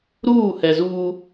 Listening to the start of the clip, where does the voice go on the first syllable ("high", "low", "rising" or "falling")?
falling